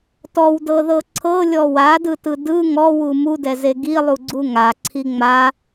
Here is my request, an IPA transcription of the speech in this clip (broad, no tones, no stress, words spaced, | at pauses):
tɔwdɤðɤ ǀʰɤlʲɔ wadɯtɯ dɯ ŋɔwu mudɛze ɡilˠuɡ͡ǀu ŋaǀʰi ŋ͡ma